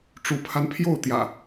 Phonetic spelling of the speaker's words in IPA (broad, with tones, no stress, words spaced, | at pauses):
ʈ͡ʂu˨˦pʰa˧npʰjo˥˨ʊ̯t̪jä̰˨˩